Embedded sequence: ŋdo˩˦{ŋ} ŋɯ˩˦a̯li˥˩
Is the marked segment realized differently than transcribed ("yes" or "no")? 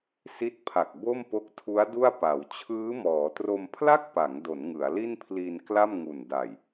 yes